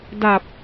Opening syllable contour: low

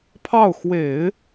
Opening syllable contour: falling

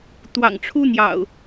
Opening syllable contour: low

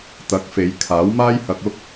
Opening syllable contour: rising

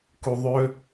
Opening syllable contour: low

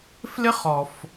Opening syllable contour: high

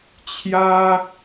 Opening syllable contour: high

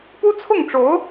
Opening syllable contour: high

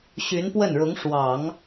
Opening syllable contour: rising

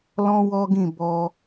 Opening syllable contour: high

